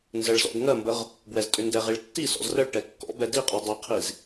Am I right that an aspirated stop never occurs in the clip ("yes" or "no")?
no